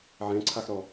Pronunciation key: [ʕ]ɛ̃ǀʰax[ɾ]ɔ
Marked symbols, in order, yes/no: yes, yes

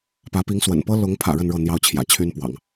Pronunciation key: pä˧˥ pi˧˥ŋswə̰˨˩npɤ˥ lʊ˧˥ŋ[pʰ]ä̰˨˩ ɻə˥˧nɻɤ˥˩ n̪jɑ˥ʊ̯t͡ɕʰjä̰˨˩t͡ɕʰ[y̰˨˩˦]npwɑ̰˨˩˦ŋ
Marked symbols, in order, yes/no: yes, no

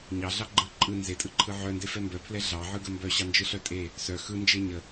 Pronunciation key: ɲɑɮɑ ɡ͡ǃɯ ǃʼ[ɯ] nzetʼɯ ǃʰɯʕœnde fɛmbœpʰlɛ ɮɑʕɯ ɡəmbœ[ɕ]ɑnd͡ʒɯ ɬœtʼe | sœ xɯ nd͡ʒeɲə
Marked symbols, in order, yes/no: yes, yes

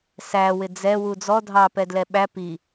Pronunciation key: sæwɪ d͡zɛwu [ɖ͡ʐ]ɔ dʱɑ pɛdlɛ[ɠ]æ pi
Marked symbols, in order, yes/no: no, no

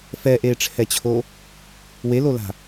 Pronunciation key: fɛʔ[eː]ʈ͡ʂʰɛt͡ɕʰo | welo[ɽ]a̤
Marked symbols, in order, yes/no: yes, no

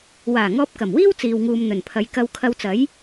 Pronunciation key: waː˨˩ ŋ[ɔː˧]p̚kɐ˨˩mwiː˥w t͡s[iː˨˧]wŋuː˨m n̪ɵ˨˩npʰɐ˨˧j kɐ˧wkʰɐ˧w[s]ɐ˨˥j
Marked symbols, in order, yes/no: yes, no, no

